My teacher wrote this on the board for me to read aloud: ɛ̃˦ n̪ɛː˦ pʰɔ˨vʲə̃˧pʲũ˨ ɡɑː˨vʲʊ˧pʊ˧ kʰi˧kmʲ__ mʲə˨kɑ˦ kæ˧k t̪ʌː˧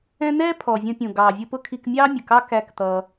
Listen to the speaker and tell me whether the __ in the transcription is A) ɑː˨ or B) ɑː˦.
B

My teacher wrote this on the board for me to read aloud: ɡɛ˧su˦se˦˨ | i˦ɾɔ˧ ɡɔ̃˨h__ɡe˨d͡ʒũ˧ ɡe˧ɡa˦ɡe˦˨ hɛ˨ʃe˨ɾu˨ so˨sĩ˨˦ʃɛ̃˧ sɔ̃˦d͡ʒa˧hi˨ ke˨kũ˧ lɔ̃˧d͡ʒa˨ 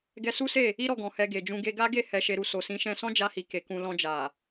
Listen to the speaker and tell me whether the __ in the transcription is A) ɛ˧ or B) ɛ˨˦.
A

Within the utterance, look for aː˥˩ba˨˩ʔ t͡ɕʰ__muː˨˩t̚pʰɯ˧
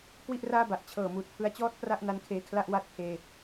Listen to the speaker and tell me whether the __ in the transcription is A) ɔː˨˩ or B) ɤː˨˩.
B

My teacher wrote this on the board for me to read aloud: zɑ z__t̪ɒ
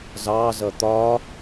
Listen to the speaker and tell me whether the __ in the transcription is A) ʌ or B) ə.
A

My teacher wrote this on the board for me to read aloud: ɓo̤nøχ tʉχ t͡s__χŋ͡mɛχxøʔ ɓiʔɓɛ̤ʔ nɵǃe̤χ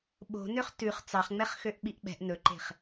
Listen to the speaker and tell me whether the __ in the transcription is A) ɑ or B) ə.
A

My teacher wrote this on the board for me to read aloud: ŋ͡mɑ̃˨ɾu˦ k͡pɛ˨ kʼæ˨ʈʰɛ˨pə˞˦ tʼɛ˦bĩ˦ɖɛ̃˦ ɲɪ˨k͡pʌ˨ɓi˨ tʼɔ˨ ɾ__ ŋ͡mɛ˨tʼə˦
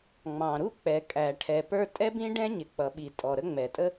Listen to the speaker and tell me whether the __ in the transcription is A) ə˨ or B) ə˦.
B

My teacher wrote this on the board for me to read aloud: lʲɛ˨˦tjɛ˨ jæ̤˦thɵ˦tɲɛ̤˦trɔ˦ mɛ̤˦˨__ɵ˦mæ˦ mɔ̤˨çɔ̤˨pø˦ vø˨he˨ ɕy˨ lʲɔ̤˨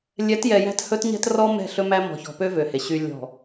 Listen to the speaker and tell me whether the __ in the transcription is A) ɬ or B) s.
A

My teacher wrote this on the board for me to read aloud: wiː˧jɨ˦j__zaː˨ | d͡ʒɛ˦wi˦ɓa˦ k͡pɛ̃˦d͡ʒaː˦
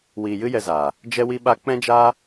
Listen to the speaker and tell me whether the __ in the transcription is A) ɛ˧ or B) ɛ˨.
A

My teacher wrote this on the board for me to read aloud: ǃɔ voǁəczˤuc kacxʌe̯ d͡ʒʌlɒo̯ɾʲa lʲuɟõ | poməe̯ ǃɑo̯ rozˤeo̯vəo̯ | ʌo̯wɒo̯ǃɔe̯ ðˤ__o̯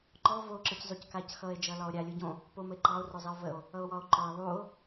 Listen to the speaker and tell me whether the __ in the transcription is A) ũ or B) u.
B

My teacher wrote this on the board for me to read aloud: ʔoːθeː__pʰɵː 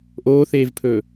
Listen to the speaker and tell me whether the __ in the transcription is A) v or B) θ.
A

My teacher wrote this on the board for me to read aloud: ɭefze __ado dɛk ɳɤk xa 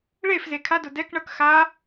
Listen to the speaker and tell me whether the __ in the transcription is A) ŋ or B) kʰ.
B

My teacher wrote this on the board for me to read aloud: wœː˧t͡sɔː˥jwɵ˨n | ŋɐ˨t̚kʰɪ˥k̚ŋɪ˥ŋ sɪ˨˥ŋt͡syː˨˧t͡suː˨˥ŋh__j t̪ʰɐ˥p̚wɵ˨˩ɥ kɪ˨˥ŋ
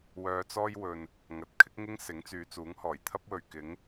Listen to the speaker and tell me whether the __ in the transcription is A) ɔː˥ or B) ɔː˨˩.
B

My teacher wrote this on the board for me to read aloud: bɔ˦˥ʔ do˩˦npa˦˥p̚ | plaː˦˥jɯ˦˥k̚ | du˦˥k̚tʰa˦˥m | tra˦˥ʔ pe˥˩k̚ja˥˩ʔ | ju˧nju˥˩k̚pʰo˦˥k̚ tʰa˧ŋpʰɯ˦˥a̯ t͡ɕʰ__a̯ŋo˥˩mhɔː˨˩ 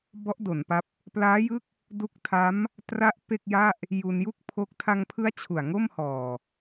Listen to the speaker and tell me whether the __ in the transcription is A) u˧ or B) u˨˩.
B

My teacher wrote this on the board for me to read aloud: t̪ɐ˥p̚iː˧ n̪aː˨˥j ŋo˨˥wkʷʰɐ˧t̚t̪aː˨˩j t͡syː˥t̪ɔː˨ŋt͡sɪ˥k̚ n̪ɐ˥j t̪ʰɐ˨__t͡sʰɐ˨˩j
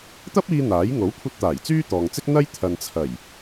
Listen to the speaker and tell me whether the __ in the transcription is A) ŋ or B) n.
B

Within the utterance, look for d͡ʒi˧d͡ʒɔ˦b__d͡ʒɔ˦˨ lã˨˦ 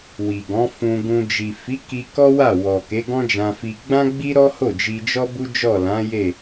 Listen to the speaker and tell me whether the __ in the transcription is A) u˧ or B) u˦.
B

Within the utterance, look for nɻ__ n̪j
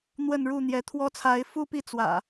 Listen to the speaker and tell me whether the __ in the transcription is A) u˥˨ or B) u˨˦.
A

